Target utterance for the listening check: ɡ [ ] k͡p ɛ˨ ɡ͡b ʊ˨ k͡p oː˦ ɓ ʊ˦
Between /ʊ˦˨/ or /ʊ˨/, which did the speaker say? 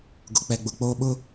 ʊ˨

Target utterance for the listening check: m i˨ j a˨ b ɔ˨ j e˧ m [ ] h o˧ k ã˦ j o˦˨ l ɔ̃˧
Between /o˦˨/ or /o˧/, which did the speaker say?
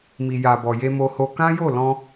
o˧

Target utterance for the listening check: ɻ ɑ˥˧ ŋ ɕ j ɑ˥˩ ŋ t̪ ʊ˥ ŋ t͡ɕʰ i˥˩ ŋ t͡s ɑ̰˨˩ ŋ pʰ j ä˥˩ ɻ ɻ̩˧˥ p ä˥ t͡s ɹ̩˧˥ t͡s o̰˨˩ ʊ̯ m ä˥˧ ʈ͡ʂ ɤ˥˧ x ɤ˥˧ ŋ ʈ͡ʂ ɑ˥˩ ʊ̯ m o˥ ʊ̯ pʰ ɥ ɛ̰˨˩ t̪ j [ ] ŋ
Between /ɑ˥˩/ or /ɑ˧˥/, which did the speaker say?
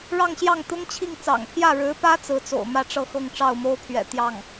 ɑ˥˩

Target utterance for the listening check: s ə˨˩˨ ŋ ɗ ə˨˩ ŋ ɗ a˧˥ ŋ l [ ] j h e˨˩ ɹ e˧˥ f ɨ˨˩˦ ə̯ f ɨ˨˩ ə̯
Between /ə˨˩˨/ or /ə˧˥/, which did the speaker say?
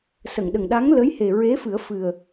ə˧˥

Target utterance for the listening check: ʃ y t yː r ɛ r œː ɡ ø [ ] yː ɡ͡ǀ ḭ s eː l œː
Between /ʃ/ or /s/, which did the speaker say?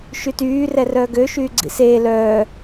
ʃ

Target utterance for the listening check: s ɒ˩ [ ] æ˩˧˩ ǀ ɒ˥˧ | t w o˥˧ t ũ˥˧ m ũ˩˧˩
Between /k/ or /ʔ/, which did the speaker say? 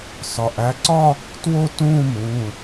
ʔ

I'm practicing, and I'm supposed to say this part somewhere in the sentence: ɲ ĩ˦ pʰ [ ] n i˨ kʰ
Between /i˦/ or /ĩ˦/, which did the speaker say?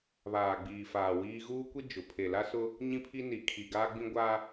i˦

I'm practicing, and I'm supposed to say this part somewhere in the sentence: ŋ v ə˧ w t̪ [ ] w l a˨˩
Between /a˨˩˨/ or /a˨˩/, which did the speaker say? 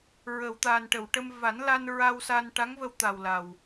a˨˩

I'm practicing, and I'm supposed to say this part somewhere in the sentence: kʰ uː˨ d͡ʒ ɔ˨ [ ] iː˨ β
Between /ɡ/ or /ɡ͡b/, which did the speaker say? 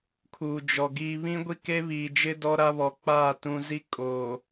ɡ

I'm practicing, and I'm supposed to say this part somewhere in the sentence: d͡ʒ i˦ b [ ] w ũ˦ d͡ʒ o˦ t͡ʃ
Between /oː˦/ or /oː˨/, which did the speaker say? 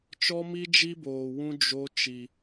oː˨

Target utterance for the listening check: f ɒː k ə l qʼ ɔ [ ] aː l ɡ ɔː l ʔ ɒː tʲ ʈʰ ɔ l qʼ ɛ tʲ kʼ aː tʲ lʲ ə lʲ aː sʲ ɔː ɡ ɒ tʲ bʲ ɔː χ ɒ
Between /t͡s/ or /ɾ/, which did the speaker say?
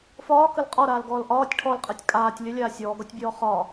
ɾ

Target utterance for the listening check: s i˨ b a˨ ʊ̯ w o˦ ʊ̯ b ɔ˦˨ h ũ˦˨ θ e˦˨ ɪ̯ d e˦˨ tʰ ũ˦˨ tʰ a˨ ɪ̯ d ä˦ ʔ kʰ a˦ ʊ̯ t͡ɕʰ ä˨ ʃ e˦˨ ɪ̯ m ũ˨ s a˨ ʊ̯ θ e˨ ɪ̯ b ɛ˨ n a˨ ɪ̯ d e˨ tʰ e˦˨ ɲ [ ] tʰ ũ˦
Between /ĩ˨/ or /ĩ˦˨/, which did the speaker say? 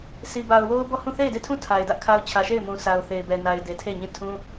ĩ˦˨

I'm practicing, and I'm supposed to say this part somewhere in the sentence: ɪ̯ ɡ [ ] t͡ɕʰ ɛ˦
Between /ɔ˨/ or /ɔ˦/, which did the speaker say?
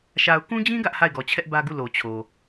ɔ˨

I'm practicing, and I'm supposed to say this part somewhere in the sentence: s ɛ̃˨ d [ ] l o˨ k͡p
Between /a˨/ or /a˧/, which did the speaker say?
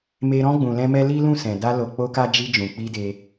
a˧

